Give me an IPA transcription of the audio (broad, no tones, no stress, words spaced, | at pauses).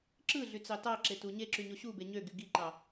ǁɯɮyt͡sɑ tɑǁetu ɲeǁyɲo ɕube ɲøɡy ɡiǃɑ